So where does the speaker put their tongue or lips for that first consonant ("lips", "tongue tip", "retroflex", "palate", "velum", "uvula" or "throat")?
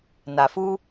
tongue tip